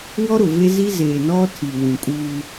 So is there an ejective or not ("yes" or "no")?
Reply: yes